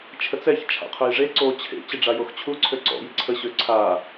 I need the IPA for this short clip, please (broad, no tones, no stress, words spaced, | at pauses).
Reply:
t͡ʃʰət͡sɛç t͡ʃʰa̰qʰœjʐe ǀoːt͡ɕʰḛ t͡ɕəɖ͡ʐajoxt͡ɕʰu ǀʰøǀɔ̰ jiǀʰə ɕøǀʰaː